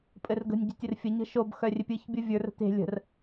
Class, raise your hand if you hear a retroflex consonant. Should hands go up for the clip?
no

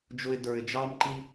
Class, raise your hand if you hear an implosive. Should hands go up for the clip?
no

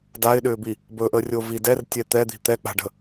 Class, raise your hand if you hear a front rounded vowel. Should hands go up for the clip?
yes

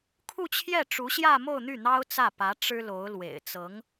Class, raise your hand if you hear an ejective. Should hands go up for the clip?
no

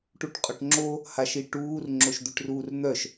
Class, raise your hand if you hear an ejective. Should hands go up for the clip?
yes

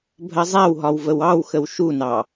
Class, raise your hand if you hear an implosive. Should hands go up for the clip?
no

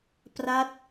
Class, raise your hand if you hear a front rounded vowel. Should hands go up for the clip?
no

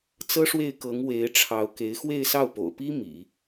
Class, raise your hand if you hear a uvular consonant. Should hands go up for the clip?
no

